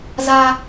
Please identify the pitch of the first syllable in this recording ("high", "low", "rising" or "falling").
high